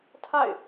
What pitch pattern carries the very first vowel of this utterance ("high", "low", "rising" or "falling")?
falling